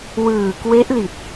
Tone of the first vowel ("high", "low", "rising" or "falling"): low